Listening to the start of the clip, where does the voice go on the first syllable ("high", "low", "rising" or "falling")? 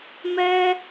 high